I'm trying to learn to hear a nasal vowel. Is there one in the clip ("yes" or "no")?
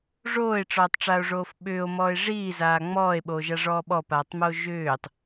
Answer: no